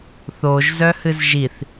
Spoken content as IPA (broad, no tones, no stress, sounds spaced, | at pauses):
θ o ʒ z œ h ɨ z ʒ i θ